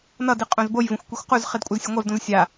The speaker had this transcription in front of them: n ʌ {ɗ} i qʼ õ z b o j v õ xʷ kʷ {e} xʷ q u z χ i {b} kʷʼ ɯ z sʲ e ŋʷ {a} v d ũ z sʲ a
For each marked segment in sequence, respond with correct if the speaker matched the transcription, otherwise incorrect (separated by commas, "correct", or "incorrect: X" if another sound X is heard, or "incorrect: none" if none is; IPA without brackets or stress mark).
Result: incorrect: d, incorrect: i, incorrect: d, correct